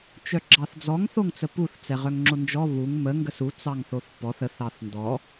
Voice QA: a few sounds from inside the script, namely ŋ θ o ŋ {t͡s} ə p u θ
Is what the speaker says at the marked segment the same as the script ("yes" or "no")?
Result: yes